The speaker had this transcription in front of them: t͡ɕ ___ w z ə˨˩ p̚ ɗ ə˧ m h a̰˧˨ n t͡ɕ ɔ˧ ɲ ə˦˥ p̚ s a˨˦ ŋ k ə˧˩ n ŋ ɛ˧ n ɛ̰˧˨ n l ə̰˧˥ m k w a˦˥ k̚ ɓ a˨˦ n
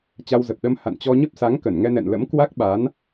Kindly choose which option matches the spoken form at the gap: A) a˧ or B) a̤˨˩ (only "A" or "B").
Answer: A